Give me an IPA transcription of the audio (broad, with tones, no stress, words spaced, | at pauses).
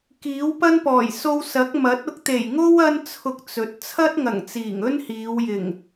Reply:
kiː˨˥wpɐ˥npɔː˨˩j so˧wsɐ˨˥k̚mɐ˨˥t̚ ʊ˧k̚t̪e˨˩jŋo˥w ɐ˥nt͡sʰʊ˧k̚ t͡sɵ˨˥t̚ t͡sʰɐ˥t̚ŋɐ˨˩ŋt͡siː˨˩ŋ ɵ˥nhiː˨˧w jɪ˨˩ŋ